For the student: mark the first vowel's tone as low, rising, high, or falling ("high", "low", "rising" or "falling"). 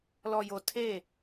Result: low